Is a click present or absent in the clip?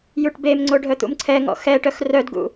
present